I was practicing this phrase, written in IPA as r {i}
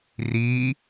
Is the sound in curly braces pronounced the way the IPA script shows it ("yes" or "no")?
no